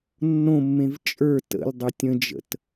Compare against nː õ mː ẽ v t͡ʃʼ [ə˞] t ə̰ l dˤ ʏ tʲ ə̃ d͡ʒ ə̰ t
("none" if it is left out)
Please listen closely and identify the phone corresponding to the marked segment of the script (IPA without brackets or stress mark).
ə˞